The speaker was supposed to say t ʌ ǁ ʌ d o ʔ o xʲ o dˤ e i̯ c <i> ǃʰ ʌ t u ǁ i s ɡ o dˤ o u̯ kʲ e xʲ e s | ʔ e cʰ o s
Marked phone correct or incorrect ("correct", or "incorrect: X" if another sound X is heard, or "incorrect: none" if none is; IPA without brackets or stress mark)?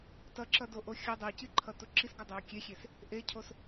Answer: correct